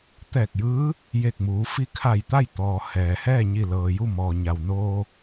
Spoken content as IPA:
t̪ ɛː˧˩ k̚ j ɯː˧˥ | j e˧˩ k̚ m uː˩˧ f i˧ kʰ a˧˩ j t̪ a˥˨ j t̪ ɔː˩ h ɛː˩ h ɛː˥˨ ɲ i˧˩ l ɤː˩ j u˥˨ m ɔː˩ ɲ a˩ w n oː˧

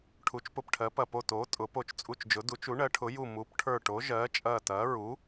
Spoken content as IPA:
ʈʰ u˨˥ t͡ʃ p ʊ˦˨ p ʈʰ ɜ˨˥ p ɐ˦˨ p o˦˨ t oː˨˥ tʼ ʊ˨˥ p o˦˨ t͡ʃ t͡sʼ u˦˨ t͡ʃ d͡ʒ ʊ˨˥ d u˨˥ t͡ʃ u˨˥ ɳ ɜ˨˥ ʈʰ ʊ˨˥ j u˦˨ m u˨˥ p ʈʰ ə˞˦˨ ʈ o˨˥ ʒ ɜː˨˥ t͡ʃʼ ɐː˦˨ t ɐː˨˥ ɹ u˨˥

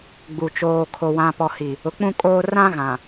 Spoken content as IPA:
ɡ͡b u˨ t͡ʃ oː˨ kʰ o˨ w ã˨ p ɔ˨ h i˨ | ʊ˨ k͡p ũ˦ kʼ oː˦ r ã˦ ɣ ã˨

